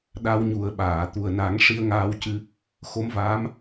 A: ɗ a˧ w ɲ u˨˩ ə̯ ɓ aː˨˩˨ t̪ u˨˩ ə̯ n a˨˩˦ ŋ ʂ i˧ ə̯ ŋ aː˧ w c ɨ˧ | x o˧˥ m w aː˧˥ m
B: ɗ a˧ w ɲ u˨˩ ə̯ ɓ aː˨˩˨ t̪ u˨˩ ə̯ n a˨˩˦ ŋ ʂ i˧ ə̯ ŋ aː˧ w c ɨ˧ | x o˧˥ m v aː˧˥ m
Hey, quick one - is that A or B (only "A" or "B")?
B